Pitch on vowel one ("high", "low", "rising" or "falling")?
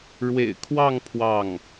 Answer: low